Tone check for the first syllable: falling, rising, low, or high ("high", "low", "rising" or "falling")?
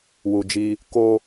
low